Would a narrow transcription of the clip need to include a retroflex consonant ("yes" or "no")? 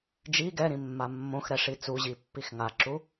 yes